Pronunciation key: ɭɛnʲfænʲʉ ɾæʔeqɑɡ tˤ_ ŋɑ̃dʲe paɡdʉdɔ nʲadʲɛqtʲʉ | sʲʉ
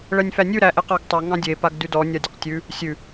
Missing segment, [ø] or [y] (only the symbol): ø